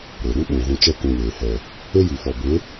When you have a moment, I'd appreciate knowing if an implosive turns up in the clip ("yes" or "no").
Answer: yes